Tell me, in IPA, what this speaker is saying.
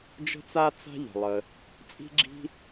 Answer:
d͡ʒə̤˥t͡sa˥ t͡sa̤˥ʎə̤˩ lˠə˩ | t͡sʼi̤˥ɡ͡ǁi̤˥

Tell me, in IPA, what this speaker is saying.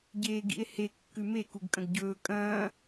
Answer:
ɟeːɡḭe̯he kːʉme kuɡkʼɐ̃ɡɟɵː kʼɐ̃ː

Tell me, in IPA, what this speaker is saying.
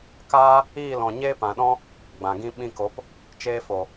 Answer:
kaː˦ | iː˦˨lɔ̃˨ ɲeː˦pã˨ɗɔ̃˦ | ɡ͡bã˨ɡĩ˦ ɓĩ˧ko˨˦p | t͡ʃeː˧fo˨

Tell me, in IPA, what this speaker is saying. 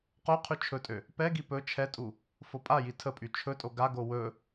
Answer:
qo qʰyt͡ʃʰɵtʼø | pɛɡi pɵ t͡ʃʰɛtʼu | fopʼaji tʰəpʼy t͡ʃʰɵtʼo ɡaɡo wɵ

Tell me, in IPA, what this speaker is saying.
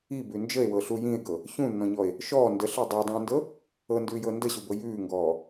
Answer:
ibʉ nd͡ʒəe̯wɤɬu jĩe̯ɡɤ | çũnːɔ̃ɲɔe̯ | ʃɔː ndəɬə˞ dˤə˞dˤõːndɤ | ɤndʉːjɤ ndəɕubɤ jʉːŋɡɔː

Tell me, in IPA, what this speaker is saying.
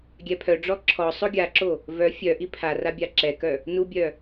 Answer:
ɡʲɛpʰœɖ͡ʐɔ ǁʰɔ sˤoɡʲaǁo | vœ fʲœʔi pʰara bʲaǁɛkœ | nubʲœ

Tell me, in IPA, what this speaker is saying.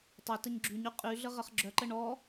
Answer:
tˤə təɲɡ͡ǁyɲy qʼy ɮəʁəχɡ͡ǁœǃə ɳɔ

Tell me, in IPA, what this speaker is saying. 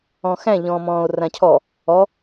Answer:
ɔ̃xæ̃ ʎɔ̃ːmɔ̃ːo̯rãcʰɔ | ɔ

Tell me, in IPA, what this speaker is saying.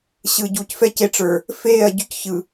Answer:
ɕɯ˨ɟu˨c fɛ˦˨ce˦ʈ͡ʂə˞˨ | feː˦˨ɐ̯ɟy˦cçɯ˨

